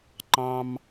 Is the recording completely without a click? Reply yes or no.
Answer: no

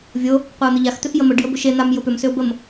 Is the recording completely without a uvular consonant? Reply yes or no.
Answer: no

